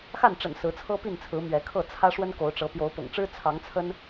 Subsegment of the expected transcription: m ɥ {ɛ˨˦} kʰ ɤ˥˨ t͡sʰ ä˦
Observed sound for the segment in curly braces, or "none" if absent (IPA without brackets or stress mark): ɛ˨˦